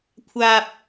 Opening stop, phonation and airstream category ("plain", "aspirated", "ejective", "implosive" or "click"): aspirated